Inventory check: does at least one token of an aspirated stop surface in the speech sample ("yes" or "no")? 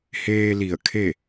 yes